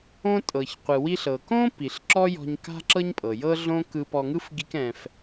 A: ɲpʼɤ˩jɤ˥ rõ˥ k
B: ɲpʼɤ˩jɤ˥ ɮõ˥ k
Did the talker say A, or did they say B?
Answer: B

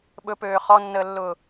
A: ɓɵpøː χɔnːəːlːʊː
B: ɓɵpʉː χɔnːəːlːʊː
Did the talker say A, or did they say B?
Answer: A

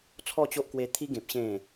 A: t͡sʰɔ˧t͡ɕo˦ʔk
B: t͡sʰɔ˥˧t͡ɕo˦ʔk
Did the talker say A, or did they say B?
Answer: B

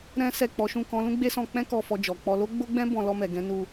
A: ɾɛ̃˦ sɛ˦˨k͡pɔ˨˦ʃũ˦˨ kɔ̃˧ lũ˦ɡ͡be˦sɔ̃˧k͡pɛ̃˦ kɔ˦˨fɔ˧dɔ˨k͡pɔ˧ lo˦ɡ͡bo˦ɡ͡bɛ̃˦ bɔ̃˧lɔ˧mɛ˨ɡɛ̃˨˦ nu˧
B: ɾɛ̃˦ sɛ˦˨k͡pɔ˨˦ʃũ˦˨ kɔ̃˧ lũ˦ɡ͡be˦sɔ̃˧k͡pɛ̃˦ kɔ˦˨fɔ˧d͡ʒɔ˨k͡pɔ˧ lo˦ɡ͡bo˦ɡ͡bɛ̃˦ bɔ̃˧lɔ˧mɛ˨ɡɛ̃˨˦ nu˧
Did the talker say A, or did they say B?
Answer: B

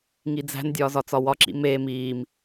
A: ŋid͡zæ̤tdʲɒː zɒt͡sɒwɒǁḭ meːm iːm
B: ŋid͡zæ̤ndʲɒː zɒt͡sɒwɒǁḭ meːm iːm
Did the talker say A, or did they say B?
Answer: B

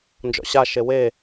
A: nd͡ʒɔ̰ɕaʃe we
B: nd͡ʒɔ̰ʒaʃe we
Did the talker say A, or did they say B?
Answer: A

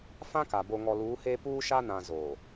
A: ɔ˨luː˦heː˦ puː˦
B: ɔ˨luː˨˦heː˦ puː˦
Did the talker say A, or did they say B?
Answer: B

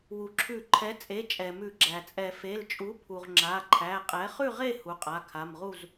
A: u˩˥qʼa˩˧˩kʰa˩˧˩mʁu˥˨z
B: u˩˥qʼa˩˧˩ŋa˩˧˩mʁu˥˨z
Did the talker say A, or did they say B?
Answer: A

